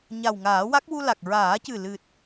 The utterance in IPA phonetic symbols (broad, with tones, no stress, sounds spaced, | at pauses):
ɲ a˨˩ w ŋ aː˨˩˦ w a˦˥ k̚ w u˧ l a˨˩ k̚ ɹ aː˨˩˦ c ɨ˨˩ l ɨ˨˩ t̚